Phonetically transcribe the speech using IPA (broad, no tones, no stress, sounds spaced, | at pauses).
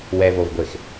w ɛ v o v ɡʷ e x